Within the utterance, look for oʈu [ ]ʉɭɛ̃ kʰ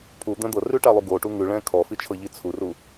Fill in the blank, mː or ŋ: ŋ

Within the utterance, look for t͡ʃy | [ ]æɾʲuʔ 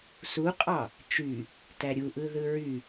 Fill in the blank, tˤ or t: t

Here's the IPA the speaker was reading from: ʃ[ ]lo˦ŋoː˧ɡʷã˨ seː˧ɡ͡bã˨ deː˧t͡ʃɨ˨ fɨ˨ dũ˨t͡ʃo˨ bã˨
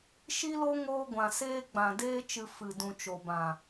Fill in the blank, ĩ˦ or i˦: i˦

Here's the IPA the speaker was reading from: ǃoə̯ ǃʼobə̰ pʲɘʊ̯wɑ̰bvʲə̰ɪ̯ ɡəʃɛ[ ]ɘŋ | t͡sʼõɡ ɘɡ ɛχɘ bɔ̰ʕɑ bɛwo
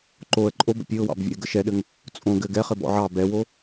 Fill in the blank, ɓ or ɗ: ɗ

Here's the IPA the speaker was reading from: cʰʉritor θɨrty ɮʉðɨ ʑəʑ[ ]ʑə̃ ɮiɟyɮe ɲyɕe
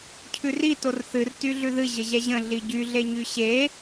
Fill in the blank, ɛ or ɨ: ɛ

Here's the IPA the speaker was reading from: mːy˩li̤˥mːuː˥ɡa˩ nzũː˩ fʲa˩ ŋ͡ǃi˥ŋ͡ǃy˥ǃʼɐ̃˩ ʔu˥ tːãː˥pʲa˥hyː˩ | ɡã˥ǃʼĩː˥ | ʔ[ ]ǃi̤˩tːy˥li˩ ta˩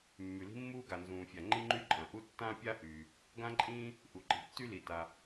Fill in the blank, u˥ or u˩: u˩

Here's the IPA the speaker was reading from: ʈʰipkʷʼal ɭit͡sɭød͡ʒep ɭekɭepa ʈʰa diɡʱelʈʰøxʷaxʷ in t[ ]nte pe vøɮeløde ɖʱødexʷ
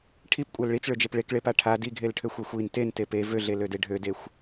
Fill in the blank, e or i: e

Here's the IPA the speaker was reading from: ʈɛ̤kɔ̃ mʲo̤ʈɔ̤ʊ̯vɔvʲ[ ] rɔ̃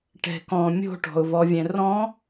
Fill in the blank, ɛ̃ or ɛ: ɛ̃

